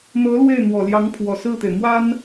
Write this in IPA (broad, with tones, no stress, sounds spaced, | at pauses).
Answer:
n̪ ɤ˧˥ l w e˥˩ ɪ̯ n̪ w ɔ˨˩ l j ɑ˧˥ ŋ pʰ w ɔ˨˩ s ɹ̩˥˩ t̪ e˩ ɪ̯ m w a˥ n